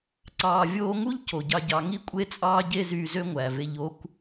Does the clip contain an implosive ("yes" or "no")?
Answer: no